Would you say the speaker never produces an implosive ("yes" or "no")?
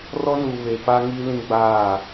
yes